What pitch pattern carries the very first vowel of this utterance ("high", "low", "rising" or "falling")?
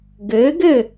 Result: rising